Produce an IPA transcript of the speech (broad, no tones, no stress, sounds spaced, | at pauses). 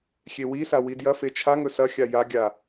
xʲ e w i s a w i d j ɐ f e t͡ʃʰ a ŋ ɵ s ɐ xʲ a j a ɡʲ a